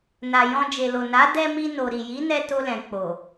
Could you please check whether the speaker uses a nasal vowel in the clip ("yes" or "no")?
yes